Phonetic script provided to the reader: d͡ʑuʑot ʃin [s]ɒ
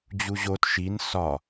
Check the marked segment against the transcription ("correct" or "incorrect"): correct